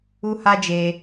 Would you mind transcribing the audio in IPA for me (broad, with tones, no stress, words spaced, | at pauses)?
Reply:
u˦ha˦d͡ʒe˧